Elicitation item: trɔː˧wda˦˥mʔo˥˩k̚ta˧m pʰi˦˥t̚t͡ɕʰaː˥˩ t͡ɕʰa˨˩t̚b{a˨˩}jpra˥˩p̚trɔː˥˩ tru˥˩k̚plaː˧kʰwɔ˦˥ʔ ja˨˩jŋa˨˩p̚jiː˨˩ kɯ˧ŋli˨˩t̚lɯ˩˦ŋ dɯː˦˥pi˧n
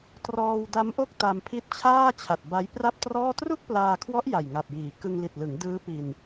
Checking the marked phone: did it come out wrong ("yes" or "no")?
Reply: yes